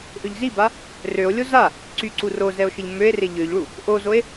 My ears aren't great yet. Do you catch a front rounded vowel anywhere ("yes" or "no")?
yes